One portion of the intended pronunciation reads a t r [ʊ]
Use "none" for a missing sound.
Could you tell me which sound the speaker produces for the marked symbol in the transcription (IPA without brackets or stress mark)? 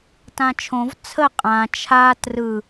ɯ